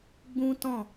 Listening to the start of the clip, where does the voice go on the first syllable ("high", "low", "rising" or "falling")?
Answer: high